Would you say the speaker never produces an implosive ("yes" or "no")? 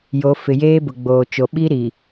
no